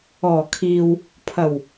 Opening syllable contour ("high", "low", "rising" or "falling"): low